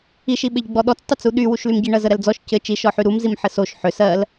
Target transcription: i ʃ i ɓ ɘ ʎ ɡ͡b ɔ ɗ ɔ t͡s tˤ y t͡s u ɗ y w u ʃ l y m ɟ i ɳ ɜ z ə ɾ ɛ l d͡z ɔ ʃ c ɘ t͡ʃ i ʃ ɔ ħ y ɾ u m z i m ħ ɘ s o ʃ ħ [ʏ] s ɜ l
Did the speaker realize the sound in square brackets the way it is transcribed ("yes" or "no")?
yes